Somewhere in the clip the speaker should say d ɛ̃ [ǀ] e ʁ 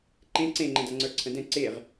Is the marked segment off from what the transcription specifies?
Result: no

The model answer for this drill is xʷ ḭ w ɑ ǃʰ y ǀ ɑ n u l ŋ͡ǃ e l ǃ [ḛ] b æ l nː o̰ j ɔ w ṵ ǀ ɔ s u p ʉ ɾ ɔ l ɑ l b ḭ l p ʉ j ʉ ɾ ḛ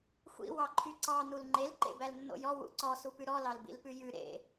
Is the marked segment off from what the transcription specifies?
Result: no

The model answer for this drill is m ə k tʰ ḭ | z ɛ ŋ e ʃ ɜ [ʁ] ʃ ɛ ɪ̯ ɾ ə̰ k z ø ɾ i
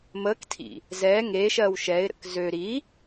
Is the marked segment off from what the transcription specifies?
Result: yes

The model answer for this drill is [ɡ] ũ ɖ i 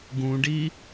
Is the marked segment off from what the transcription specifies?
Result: no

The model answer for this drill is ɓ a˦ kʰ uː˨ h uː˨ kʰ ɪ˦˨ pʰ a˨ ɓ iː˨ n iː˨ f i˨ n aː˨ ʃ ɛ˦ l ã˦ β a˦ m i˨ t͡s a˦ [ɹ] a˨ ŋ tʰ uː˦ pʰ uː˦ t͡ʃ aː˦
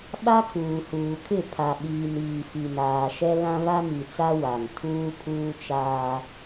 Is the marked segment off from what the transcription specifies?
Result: yes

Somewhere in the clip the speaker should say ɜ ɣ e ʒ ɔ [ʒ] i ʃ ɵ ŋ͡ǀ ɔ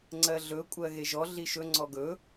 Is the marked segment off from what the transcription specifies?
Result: yes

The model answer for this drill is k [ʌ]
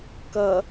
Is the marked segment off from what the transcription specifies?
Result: no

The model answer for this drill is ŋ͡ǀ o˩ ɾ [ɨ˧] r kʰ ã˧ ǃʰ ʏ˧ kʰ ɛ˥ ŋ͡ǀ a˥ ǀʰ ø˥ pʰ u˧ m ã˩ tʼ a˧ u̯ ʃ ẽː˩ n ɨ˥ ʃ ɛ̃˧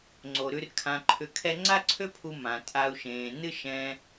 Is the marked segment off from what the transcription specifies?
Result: yes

